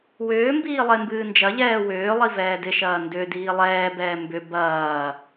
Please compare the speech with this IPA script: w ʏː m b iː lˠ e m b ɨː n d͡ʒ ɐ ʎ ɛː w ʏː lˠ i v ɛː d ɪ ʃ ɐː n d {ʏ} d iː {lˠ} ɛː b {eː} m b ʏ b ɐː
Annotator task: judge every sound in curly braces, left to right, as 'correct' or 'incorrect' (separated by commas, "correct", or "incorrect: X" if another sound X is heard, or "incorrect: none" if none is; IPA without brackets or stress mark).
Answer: correct, correct, incorrect: ɛː